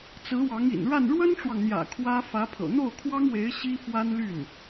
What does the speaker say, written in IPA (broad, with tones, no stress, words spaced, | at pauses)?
t͡sɹ̩˧˥wɑ˧˥ŋ ḭ˨˩nɻa˥˩n ɻwə˥nʈ͡ʂwɑ˨ŋn̪jä̰˨˩ kʰwä˥ fä˧˥pʰɤ̰˨˩ n̪o˥˩ʊ̯kʰwɑ˥ŋwe˧˥ɪ̯ ɕi˥ fwa˥nly˥˩n